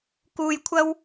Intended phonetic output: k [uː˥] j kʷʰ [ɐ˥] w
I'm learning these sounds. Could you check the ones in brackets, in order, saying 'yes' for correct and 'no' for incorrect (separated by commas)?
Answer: no, yes